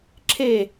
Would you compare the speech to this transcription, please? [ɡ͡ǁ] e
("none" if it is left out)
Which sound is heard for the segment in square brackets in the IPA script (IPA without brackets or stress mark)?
ǁʰ